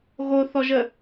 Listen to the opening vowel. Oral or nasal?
oral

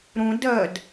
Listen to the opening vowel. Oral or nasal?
nasal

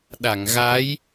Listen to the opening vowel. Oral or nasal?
oral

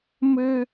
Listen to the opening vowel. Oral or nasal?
oral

